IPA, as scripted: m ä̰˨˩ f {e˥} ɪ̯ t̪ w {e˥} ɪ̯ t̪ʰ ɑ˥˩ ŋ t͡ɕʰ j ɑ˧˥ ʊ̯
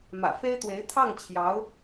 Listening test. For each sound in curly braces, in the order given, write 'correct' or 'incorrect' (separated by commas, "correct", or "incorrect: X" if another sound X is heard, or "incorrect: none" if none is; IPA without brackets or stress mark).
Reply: correct, incorrect: e˧˥